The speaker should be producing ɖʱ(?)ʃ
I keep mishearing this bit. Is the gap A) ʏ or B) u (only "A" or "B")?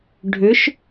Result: A